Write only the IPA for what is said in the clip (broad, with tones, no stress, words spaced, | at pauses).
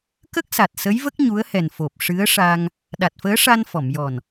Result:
kə˦˥k̚sa˨˩t̚ sə˧˥jvə˦˥k̚ ɲu˧˥ə̯hɛ˨˩nfo˨˩p̚ ʂɨ˧˥ə̯ʂa˧ŋ | ɗa˨˩t̚fəː˧˥ʂa˧n fɔ˨˩˨mjɔ˨˩n